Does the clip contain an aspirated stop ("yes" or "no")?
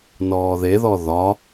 no